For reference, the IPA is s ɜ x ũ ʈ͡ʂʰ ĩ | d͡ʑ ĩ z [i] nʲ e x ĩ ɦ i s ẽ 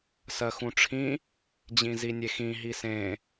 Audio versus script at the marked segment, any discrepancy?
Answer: no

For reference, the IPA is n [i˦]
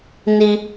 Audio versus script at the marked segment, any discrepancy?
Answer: no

